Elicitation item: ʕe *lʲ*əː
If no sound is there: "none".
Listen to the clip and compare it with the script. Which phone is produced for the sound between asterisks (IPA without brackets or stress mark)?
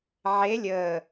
lʲ